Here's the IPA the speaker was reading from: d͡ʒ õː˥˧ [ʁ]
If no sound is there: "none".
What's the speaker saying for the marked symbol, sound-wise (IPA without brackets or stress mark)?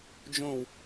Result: w